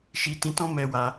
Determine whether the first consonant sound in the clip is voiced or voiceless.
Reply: voiceless